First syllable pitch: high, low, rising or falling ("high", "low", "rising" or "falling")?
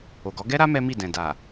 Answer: low